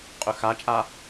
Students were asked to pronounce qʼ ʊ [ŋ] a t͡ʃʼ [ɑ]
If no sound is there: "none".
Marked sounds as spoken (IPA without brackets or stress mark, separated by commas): x, a